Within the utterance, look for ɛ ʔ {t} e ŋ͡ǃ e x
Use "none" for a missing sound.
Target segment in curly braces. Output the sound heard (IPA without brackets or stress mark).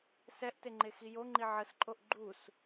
t